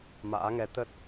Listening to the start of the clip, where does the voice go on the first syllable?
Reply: rising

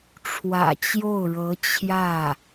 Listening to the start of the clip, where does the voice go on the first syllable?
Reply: low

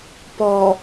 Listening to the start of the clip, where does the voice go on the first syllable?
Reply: low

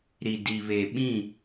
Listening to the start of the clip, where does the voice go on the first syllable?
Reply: low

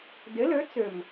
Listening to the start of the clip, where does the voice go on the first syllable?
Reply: rising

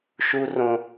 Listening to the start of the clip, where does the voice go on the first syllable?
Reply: high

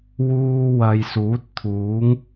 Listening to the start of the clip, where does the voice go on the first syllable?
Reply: high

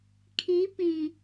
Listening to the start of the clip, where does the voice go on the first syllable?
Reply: rising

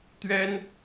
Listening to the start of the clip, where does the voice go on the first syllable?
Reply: high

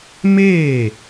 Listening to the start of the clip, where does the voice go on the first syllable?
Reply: falling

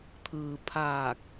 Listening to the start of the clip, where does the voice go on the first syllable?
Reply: low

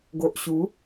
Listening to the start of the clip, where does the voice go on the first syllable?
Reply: low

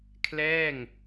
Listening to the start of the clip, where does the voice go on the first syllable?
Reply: falling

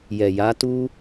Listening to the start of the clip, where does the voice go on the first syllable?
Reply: low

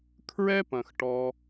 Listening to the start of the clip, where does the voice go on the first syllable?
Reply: high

